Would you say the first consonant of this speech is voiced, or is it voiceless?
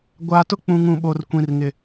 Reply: voiced